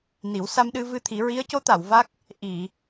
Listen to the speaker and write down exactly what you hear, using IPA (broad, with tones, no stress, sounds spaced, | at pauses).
n i˨˩˦ w s a˧ m ɗ ɨ˧ v ɨ˧ t̪ʰ i˨˩˦ ɹ i˧˥ ə̯ c o˧˥ t̪ a˨˩˨ w v a˦˥ k̚ | ʔ i˨˩˨